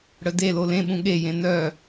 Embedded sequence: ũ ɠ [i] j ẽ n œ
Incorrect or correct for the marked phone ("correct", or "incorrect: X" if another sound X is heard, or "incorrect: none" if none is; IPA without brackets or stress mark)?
incorrect: e